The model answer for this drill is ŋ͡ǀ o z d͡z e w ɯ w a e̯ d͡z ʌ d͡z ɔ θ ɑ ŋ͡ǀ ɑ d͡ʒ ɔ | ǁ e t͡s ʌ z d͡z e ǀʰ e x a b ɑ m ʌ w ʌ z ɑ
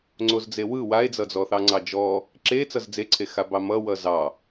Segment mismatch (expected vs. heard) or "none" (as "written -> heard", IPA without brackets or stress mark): none